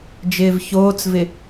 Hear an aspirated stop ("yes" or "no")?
no